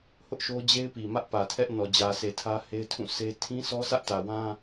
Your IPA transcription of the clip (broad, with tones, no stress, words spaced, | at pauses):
hʊ˦ʔʃo˦ d͡ʑe˦ɪ̯pi˨mä˦ʔ pä˨tʰɛ˦ʔ nɔ˨d͡ʑä˨sʰe˨ tʰä˦he˦ɪ̯tʰũ˦˨se˦ tʰĩ˦sʰɔ˦sä˦ʔ tä˨wã˦